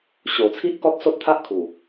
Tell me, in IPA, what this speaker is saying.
ɕ o˨˩ t͡sʰ i˦ ʔ k ɔ˦ t̚ s o˦ t̚ t̪ʰ a˦ ʔ kʰ u˨˩

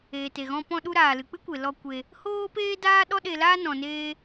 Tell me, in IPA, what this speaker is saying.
eː˨ t e˨ ɣ ɔ̃˧ p ɔ̃˧ ɗ u˧ ɾ aː˨ l ɨ˨ k͡p ɨ˦ kʷ e˨ l ɔ˧ kʷ e˧ | h oː˦ p eː˦ d aː˦ ɗ ɔ˦ ɗ e˧ l aː˦ n ɔ̃˧ n eː˦

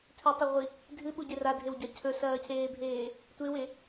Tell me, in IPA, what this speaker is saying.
tʰ ɵ tˤ ɵ ʁʷ i | dʱ ɨ ɓ u ɟ e r a dʱ e w ɟ a cʰ ɵ s ɐː cʰ eː bʱ eː | tʷ e w e

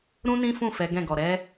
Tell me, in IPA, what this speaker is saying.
ɾ ũ˦ n ĩ˦ f ũ˦˨ f ɛ˨˦ ɡ ɛ̃˦˨ ɡ ɔ˨ ɾ ɛ˨˦

